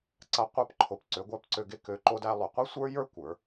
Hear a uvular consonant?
yes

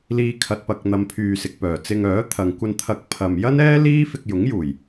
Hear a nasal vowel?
no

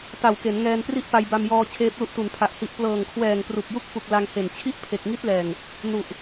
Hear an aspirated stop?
yes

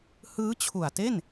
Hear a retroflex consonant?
no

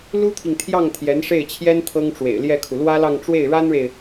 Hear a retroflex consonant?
yes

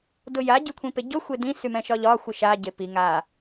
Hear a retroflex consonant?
no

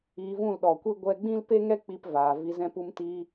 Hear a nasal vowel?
yes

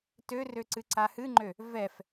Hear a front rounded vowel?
yes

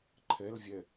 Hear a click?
yes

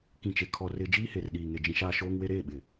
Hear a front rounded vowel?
no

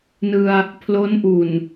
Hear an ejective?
no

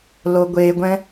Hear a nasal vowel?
yes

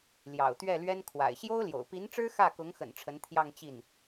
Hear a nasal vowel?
no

